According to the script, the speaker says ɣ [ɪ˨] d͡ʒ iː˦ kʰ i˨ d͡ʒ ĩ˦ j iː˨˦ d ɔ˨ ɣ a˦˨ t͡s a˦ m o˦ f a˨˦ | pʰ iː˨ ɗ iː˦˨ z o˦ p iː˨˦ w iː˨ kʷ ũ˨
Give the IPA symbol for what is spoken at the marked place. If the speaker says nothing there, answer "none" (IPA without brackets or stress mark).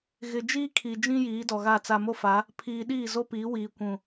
ɪ˨